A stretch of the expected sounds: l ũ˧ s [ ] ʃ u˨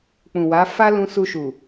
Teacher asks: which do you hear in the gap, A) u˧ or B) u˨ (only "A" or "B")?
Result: A